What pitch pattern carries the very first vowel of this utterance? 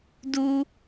high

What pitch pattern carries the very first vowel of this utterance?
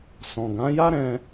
low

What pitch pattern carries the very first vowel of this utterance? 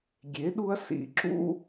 rising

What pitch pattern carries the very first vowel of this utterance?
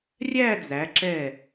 falling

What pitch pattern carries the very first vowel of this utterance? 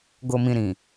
low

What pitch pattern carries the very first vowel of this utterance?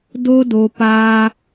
high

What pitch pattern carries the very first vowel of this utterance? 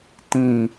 falling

